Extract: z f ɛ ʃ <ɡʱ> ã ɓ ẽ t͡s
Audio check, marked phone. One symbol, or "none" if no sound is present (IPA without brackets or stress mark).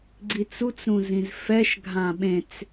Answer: ɡʱ